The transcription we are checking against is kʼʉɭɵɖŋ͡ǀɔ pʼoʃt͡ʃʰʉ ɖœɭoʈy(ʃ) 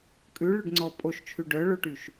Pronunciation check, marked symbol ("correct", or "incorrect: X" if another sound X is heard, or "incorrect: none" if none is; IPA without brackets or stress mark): correct